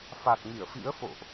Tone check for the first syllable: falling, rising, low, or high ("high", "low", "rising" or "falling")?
low